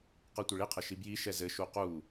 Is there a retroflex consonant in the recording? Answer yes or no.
yes